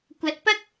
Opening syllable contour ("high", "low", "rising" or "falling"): rising